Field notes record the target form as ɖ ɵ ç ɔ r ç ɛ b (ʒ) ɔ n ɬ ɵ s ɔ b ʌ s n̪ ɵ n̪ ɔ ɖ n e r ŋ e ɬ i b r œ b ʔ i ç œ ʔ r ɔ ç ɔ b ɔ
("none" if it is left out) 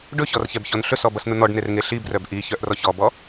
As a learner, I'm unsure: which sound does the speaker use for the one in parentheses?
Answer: ç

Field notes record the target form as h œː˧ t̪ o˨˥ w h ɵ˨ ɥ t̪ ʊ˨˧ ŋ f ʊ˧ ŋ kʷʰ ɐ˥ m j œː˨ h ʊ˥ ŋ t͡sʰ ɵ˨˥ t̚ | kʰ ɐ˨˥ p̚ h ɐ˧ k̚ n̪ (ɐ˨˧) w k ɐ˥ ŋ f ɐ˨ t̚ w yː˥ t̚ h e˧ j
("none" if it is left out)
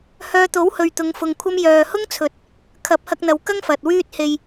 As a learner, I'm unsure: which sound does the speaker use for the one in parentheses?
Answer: ɐ˨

